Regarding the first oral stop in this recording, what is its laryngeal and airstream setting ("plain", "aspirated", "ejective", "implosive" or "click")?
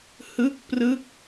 plain